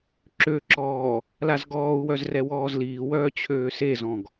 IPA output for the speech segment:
ǁ ø ǁ ɔː | l a z ɡ ɔː u̯ w œ z r ɛ w ɔː z l iː w œː t͡ɕʰ øː s e z ɔ̃ ɡ

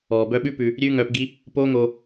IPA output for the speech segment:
ɔː˨ b œ˧ ɓ ʉ˦ p ʉ˧ | ɾʲ ʉː˦ ŋ œː˧ p ɡ i˦ | p oː˦ ŋ o˧

